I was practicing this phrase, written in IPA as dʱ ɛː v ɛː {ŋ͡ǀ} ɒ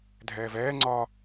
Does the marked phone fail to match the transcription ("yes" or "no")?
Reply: no